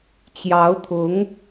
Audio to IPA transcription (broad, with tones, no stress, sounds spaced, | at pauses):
t͡ɕ j ɑ˧˥ ʊ̯ t̪ʰ ʊ˧˥ ŋ